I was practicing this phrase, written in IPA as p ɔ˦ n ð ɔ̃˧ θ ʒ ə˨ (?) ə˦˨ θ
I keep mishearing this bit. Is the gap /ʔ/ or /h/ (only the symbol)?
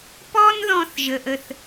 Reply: ʔ